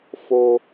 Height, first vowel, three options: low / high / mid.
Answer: mid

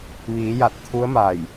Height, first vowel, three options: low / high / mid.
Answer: high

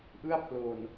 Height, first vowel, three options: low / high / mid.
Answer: high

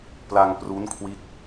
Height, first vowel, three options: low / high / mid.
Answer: low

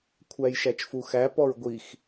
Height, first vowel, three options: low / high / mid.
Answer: low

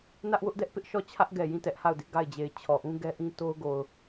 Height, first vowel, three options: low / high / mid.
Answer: low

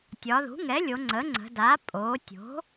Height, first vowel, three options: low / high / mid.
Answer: low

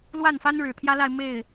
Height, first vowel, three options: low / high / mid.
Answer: low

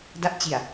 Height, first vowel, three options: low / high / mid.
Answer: low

